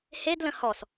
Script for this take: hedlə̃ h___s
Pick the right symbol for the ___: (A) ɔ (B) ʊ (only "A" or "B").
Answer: A